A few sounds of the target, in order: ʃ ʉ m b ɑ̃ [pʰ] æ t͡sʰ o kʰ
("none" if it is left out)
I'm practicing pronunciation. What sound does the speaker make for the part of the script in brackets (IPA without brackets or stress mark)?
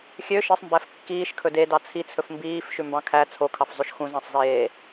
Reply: kʰ